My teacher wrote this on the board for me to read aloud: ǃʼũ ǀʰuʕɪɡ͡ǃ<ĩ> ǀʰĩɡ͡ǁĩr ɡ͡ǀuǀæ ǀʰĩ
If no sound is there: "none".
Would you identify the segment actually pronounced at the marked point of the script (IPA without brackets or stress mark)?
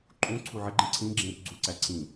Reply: ĩ